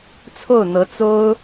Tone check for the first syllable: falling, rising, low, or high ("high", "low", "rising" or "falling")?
falling